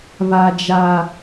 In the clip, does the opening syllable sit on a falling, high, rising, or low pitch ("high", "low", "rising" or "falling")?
high